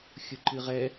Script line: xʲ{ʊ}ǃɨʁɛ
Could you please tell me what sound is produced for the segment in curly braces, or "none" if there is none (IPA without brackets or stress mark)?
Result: ʊ